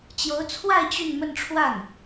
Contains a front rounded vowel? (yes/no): yes